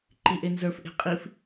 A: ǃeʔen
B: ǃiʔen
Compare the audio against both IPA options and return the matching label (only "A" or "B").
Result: B